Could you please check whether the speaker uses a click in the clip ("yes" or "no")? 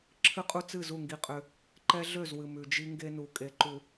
yes